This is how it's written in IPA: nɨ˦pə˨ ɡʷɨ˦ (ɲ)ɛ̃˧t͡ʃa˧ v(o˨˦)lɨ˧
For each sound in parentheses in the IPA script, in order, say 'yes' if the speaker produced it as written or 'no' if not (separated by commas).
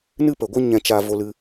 yes, no